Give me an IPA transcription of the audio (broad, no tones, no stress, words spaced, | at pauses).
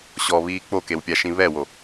ɕɔβiː k͡pokewpʲaʃĩ βɛwo